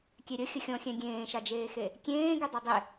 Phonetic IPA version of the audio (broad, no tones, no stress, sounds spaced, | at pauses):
kʲ e ɾʲ ə xʲ ə xʲ ɔ̃ xʲ ɛ̃ ɡʲ ẽː ʃ a d͡ʒ eː x e | kʲ ẽː ɡ y dˤ o dˤ e